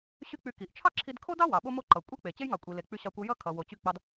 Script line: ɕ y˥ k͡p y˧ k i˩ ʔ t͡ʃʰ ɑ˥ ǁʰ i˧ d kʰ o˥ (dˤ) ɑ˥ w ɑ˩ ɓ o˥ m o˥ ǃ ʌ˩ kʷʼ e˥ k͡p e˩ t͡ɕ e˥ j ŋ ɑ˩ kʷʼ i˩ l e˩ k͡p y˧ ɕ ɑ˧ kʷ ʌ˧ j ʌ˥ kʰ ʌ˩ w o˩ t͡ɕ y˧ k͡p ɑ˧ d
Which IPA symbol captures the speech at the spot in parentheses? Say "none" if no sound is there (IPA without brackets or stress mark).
d